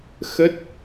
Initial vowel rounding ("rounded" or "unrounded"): unrounded